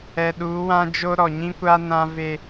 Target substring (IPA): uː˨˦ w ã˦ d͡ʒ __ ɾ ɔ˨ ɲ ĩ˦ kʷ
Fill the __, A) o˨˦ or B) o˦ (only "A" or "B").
B